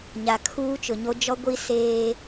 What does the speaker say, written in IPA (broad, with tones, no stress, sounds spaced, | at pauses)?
ɲ a˨ kʰ uː˦ t͡ʃ ʊ˨ ɲ o˦ d͡ʒ ɔ˦ ɡʷ i˦ s eː˦